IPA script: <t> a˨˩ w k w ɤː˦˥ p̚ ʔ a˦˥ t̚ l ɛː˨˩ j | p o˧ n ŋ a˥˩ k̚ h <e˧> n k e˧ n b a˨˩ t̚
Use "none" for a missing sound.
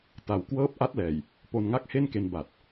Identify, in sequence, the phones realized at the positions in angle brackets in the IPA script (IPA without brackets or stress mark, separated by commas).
t, e˥˩